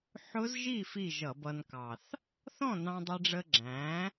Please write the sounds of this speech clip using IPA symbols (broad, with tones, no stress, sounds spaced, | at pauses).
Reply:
ħ ʊ˦˥ z ʒ i˥˨ f i˥˨ ʒ ʌ˧˩˧ b ʌ˧ n k ɑ˨˩ θ | θ ɔ̃˥˨ n ɑ̃˧ dˤ ɛ˧ ɖ͡ʐ ə˧ ɡ͡ǁ æ̃˩˥